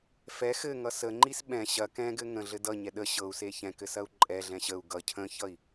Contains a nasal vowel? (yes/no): yes